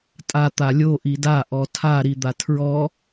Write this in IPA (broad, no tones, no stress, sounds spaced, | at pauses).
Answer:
tʼ a t̪ a lʲ o ʔ i d a ʔ ɔ tʰ a ɾ i d̪ a tʰ ɹ ɔ